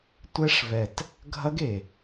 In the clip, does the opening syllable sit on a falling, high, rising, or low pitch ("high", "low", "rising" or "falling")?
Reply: high